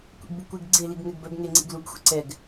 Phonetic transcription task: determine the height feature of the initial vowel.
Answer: mid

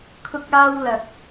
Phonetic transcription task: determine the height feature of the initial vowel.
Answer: high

